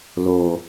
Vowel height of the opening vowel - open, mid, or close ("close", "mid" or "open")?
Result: mid